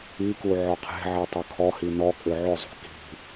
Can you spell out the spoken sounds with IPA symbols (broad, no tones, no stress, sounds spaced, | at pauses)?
i k u ʕ ɔ qʰ e̤ ʕ e tˤ ʏ kʰ ɔ h i n ɔ kʼ ʏ ʕ ʏ zˤ ṳ k i̤